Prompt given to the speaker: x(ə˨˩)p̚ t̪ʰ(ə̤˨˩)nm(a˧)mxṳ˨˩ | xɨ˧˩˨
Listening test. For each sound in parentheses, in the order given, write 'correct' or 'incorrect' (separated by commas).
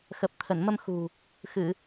correct, incorrect, incorrect